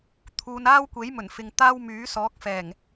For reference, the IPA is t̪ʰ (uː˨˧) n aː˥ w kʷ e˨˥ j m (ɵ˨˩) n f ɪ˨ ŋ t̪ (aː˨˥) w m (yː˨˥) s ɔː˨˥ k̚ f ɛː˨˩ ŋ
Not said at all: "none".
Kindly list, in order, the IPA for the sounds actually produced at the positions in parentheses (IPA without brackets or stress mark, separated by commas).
uː˨˧, ɵ˨˩, aː˥, yː˨˥